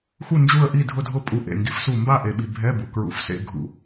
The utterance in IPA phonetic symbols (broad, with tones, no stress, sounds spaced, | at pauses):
x u˥˨ n d͡ʒ u˥˨ ə̯ ʔ i˥˨ dʱ ʊ˥˨ dʱ ʊ˥˨ pʼ u˧ ʔ ḛ˩ ŋ ɡ i˩˥ f s u˧˩ m b a˥˨ ʔ e˧ ɓ i˧ bʱ ɛ˧˥˧ b u˩ k ɹ ṵ˧˩ f s ḛ˧˥˧ ɡʱ ṵ˧˩